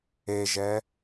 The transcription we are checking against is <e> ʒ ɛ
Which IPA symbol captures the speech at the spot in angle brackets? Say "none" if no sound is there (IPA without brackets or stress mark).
e